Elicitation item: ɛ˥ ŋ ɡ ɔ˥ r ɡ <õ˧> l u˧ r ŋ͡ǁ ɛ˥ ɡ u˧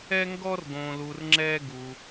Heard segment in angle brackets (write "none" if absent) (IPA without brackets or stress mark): õ˧